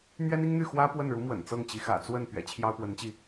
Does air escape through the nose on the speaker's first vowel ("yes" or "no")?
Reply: no